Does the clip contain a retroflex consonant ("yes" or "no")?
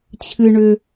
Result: yes